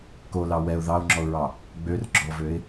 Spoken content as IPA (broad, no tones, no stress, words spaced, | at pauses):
kolɑ wɛʊ̯ ðɑʊ̯ŋ͡ǁɔʊ̯ɹɑ | ɡ͡børɡ͡ǁɔvøɪ̯